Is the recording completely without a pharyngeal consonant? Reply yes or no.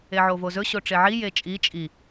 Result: no